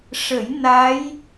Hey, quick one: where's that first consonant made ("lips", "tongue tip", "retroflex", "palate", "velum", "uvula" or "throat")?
retroflex